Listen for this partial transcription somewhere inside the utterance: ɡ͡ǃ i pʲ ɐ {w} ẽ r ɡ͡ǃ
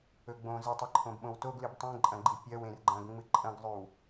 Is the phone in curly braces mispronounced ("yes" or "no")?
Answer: no